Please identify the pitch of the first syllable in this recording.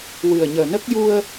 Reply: low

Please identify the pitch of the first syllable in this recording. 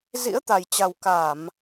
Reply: rising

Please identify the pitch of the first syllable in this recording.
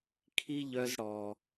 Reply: high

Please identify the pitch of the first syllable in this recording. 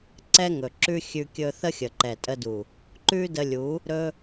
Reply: high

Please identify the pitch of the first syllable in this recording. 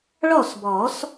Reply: falling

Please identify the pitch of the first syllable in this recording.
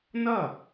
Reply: falling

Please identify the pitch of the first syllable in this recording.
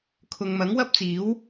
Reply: low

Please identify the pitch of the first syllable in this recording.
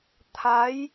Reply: rising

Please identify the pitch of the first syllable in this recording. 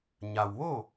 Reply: low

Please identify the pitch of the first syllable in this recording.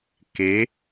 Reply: rising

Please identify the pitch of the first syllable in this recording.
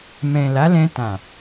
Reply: low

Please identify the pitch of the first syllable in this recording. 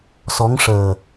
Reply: rising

